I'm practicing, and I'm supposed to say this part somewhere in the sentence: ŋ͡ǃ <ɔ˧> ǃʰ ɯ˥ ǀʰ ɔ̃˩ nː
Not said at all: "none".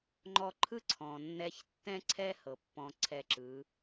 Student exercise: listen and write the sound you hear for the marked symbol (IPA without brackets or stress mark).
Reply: ɔ˧